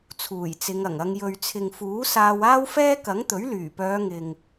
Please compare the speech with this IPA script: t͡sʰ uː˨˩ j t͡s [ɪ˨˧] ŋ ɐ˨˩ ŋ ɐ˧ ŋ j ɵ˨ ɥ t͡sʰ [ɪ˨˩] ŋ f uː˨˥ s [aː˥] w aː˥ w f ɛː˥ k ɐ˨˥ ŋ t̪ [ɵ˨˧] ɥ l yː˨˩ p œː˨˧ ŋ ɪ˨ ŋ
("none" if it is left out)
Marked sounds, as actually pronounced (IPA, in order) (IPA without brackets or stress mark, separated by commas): ɪ˨˧, ɪ˨, aː˧, ɵ˨˥